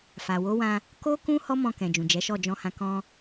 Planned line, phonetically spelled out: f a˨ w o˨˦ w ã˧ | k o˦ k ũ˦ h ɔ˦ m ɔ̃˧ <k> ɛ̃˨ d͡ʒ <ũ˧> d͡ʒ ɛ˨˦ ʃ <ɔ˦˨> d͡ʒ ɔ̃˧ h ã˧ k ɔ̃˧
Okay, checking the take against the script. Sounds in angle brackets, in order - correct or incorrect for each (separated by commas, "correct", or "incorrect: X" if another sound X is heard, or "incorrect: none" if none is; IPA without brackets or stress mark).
correct, incorrect: ũ˨, correct